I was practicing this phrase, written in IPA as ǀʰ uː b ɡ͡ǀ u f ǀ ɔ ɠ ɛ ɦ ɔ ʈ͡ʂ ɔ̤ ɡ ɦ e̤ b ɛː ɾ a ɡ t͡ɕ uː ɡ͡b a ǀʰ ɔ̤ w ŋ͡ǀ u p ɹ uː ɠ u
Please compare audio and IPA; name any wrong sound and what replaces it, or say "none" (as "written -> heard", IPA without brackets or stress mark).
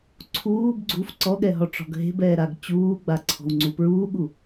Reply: none